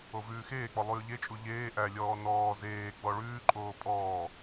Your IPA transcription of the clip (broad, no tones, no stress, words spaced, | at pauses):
ovʉːxeːk͡pɔ lˠʉːʎet͡ʃʼu ʎeː ʔælʲɔː nɔː zeː ɡ͡bɔɭʉːǃʼoː pʼɔː